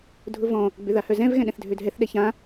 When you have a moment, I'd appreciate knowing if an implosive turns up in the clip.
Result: yes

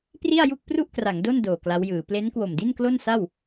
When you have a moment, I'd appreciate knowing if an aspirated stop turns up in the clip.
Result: no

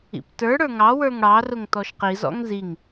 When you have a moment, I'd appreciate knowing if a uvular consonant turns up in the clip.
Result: yes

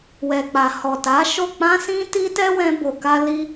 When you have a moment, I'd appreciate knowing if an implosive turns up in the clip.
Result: no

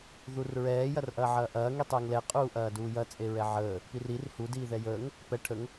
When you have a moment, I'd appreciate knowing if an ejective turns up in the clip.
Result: yes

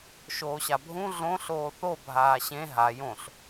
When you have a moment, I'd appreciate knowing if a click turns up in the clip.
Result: no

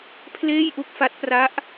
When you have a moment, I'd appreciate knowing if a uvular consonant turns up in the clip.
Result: no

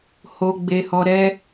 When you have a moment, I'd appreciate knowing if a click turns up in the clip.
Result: no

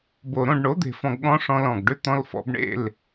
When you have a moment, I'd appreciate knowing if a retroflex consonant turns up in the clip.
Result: yes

